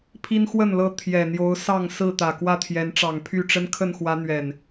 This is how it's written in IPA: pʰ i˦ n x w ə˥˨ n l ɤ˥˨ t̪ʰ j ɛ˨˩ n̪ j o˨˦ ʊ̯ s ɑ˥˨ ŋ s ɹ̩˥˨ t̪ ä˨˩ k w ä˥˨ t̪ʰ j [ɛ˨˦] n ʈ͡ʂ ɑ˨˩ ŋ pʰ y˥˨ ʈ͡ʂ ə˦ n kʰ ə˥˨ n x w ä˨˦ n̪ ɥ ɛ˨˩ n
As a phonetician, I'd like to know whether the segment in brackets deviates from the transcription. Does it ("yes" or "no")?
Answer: no